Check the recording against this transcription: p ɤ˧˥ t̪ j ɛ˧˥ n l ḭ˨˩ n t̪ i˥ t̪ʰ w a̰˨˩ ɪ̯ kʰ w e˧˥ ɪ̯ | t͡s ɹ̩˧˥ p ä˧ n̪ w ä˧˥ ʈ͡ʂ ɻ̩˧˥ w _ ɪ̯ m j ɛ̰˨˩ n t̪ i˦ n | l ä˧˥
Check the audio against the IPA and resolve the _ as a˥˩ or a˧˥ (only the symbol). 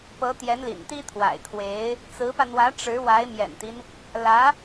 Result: a˧˥